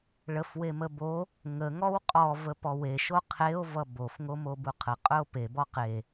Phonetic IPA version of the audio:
ɭ ə f w e m ə b o | ŋ ə ŋ ɔ w qʼ ɔ v ə p ɔ w e ʃ o qʰ e o̯ v ʌ b o f ŋ o m o b u qʰ ə qʼ ɵ o̯ p e b ɔ q e

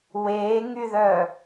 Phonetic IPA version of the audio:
w eː ŋ y ð œː

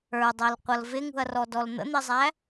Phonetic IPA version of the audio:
ə˞ dˤ æ l qʷ ʌ l v ɪ ŋ ṳ ɐ̯ r ɔ d ɔ l n̪ ə̰ n̪ i zˤ æ

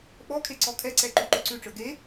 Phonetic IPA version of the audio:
ɓ ɔ kʰ e ǀ ɔ kʰ ɛ ǀ ɛ ǃ y ǃ ʉ ǀ ʉ ʈ͡ʂ ə˞ ɡ e

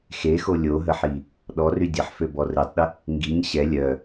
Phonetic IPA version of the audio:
x e x o lʲ o ɦ ə ħ i | ɗ ɔ r y dʲ ə ħ f ø b ɔ r e tˤ ɗ ə | ŋ ɡ i ɲ ɕ ɛ lʲ œ

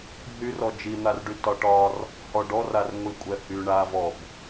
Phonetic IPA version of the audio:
ɦ y r ɔ d͡ʒ i n̪ a r ɖ y t ɒ ʈ ɒ r | h ɔ ɖ ɔ r a r ŋʷ i kʷʼ ɛ h y ɳ a v ɔ b

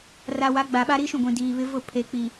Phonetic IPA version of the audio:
r a˨ w a˨˦ ɡ͡b a˨ ɓ a˦ ɾ i˦ ʃ ũ˦˨ ɡʷ ĩ˨ d iː˨ β ɪ˦ v ʊ˦˨ pʰ e˨ k͡p i˨

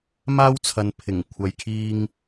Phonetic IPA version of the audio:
m aː˥ w t͡sʰ ɐ˨ n pʰ ɪ˨˩ ŋ kʷʰ ɐ˨ j kʰ iː˧ ŋ

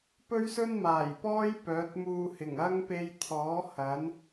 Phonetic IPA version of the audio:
p ɵ˥ ɥ s ɵ˥ n m aː˨˩ j p ɔː˥ j p œː˨˥ t̚ m uː˧ h ɪ˨˩ ŋ ɐ˥ ŋ p e˧ j t̪ʰ ɔː˨˥ h ɐ˨˥ n

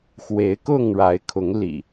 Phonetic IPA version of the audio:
x w e˨˦ ɪ̯ k ʊ˥˨ ŋ ɻ a˨˦ ɪ̯ kʰ ʊ˨˦ ŋ l ḭ˨˩

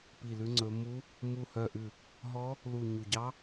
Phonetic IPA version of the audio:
p i˦˨ l ʉ˦˥ ŋ͡ǀ ɵ˦˥ m u˦˥ | m u˦˨ h œ˦˨ ʔ ʉ˦˨ | ɦ ɔ˦˥ | l u˦˨ ɲ u˦˨ ɟ ɑ˦˥

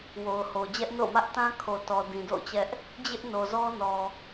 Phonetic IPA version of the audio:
w o˨ ʊ̯ h o˨ d͡ʑ ɛ˦ ʔ n o̰˦˨ ʊ̯ m ä˦ ʔ t ã˦ kʰ o˨ t ɔ˨ d ĩ˨ d o̰˦˨ ʊ̯ t͡ɕ ɛ˦ ʔ | d͡ʑ ɪ˦ ʔ n o˨ z ɔ˦ n ɔ˨

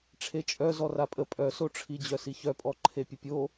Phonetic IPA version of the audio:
ʈ͡ʂʰ e t͡ʃʼ œ z ɔ r a pʼ ə pʼ œ s o ʈ͡ʂʰ i d͡ʑ œ s i ç œ pʼ ɔ ǃʰ e pʲ ə pʲ o

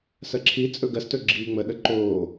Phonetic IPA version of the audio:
s ɜ ǁʰ i t͡sʼ ɵ ɡ ɜ s t ɵ ɡ͡ǁ iː ŋ͡m ə ɗ ə ǃ oː

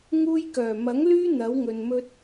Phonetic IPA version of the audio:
ŋ uː˥ j k œː˨˩ m ɐ˨˥ ŋ l yː˥ n̪ ɐ˨˥ w ŋ ɵ˨ n m ɵ˥ t̚

